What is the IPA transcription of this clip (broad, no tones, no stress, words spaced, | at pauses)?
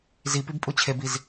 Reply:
zipib pʼut͡ɕʰebiz